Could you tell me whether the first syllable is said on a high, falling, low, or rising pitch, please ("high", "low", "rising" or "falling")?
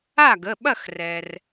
falling